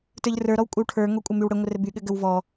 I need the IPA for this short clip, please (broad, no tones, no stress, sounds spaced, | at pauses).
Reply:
t ə˞ ʎ r ə˞ ɾ ɔ w kʷʼ ə w ʈʰ ə˞ ŋ o kʷʼ ɘ m y w ɽ ɘ ŋʷ ə r ɘ b y ɠ ɘ ɡ ə w v ɔ